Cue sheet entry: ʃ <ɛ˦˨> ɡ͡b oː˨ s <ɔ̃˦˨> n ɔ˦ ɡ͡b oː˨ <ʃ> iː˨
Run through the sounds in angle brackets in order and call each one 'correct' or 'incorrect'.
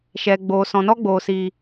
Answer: incorrect, incorrect, incorrect

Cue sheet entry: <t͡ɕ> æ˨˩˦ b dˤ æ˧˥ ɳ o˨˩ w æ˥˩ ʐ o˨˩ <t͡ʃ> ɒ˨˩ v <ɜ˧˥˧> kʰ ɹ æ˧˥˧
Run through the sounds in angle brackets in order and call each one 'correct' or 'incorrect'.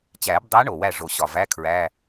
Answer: correct, incorrect, incorrect

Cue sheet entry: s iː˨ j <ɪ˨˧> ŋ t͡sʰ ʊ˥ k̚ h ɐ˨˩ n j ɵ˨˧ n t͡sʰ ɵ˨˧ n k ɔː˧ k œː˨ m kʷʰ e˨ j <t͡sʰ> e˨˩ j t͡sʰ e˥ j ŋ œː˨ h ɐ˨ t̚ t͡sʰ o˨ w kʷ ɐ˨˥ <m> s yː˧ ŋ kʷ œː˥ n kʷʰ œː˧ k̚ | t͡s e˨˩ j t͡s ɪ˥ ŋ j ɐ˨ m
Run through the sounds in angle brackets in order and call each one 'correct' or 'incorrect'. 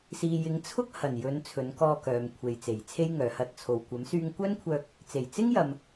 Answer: correct, incorrect, correct

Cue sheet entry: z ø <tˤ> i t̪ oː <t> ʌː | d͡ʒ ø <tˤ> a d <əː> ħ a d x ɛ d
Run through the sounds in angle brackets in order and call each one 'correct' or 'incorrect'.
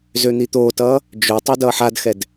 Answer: incorrect, correct, correct, incorrect

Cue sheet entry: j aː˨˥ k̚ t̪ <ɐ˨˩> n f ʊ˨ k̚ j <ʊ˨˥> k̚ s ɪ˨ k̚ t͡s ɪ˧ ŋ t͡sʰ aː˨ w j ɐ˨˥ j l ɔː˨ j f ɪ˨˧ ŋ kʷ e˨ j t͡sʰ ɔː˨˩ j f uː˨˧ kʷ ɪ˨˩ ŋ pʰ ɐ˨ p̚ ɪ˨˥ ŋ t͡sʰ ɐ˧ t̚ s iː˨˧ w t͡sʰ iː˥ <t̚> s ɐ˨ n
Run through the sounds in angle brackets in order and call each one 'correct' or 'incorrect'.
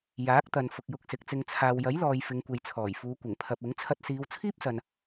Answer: incorrect, incorrect, incorrect

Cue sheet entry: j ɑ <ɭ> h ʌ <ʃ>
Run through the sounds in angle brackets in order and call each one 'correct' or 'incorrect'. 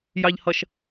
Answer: incorrect, correct

